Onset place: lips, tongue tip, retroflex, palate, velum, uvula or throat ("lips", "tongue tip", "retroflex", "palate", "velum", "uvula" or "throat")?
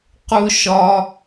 uvula